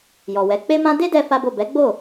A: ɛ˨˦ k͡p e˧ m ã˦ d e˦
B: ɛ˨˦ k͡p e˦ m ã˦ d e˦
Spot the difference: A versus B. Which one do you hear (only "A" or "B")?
B